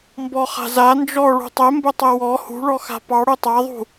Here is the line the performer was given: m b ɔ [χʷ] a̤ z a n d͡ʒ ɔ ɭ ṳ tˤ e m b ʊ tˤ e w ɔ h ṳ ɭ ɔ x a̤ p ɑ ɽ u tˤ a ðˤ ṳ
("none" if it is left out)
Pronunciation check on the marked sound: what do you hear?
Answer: χ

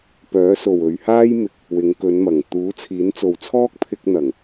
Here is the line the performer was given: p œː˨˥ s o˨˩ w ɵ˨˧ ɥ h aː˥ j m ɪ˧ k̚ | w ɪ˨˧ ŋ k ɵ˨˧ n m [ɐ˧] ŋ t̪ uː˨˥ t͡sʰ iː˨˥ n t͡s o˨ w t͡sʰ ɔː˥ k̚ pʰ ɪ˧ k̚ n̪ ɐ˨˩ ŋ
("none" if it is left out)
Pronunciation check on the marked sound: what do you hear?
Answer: ɐ˨˩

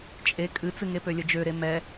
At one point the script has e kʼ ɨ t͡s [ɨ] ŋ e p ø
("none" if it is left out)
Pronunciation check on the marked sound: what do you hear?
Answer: ɨ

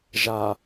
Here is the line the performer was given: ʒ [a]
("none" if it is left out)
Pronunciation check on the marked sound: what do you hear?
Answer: a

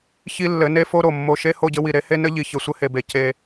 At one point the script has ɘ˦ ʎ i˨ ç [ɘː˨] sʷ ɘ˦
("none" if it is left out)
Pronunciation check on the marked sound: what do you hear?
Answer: ɘ˨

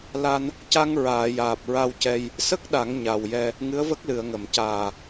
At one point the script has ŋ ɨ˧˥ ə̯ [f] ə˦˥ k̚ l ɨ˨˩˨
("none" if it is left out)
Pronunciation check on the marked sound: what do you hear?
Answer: v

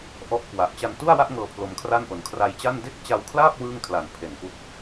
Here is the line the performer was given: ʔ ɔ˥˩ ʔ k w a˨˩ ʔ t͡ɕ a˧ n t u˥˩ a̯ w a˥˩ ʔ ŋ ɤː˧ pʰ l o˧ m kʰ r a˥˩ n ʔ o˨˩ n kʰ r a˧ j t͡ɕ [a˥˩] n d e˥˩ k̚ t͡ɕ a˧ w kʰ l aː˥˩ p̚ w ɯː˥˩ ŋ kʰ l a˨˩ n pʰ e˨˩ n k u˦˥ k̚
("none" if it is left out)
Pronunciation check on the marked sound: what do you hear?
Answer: a˥˩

